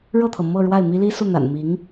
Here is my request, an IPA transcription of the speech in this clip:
ɻ ɤ˥˩ t̪ʰ ɤ˩ m ɤ˥˧ ɻ w a˥˩ ɪ̯ m i˥ l i˥ s u˥˩ n̪ a̰˨˩ n m i˧˥ ŋ

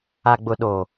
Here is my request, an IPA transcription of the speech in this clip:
a˨ ɡ͡b ʊ˨ ɗ o˨

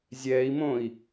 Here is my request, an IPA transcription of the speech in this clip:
zʲ ɛː i̯ m õ i̯

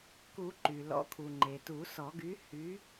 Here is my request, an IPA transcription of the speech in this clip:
k u˨˩˦ ǃ y˩ l ɔ̰˨˥ kʰ u˩ ŋ͡ǃ e˩ t u˨˩˦ s ɔ˨˩˦ ɡ y˨˥ h y˨˥

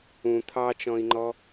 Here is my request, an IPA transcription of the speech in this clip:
ũ t̪ʰ ɑ t͡ʃ ɔ̃ i̯ ŋ͡ǃ ɔ

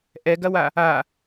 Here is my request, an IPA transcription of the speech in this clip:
ʔ ɛ ɡ ɐ w a | a

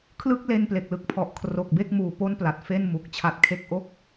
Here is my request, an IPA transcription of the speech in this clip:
kʰ l ɯ˥˩ k̚ l e˧ n p l e˨˩ k̚ l ɯ˨˩ k̚ pʰ ɔ˨˩ ʔ kʰ r o˨˩ k̚ b e˥˩ k̚ m uː˨˩ p o˥˩ n p l a˨˩ t̚ f e˥˩ n m u˨˩ k̚ t͡ɕʰ a˦˥ t̚ kʰ e˥˩ k̚ ʔ o˥˩ k̚

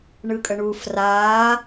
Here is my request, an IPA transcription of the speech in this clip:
ɳ ɯ kʼ ə ɳ u f r aː

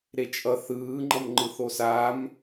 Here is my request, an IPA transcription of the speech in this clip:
ɾ e t͡ʃʼ ʌ θ ɯː ŋ͡ǃ ʌ m ŋ͡ǃ ɯ θ o s aː m

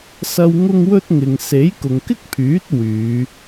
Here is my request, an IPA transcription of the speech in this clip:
s ɐ˧ w ŋ ʊ˥ ŋ w ɵ˥ t̚ ŋ ɪ˨ ŋ s e˨˥ j k ʊ˨ ŋ k ɪ˥ k̚ pʰ yː˨˥ t̚ w yː˨˧

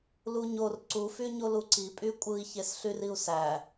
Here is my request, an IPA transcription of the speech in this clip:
l u ɲ o r ǀ u f y ɲ o l u ǀ i pʼ y kʷʼ ɯ i̯ ç e s ɬ y r i u̯ s æ

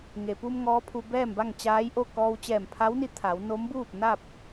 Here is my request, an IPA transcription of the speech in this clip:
ŋ e˩ p u˧ m ŋ ɔː˧˥ pʰ u˧ b ɛː˥˨ m b a˥˨ ŋ t͡ɕ aː˧˥ j ʔ o˥˨ k ɔː˧ w t͡ɕ ɛː˧˩ m pʰ a˧˥ w n i˧˥ t̪ʰ a˩˧ w n o˧˥ m b uː˥˨ p̚ n a˥˨ p̚

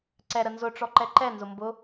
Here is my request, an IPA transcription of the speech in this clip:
ǀ ɛ ɾ ə n z ʊ ʈ͡ʂ ɔ ǃ ɛ ǃ ɛ n z ʊ m b ʊ

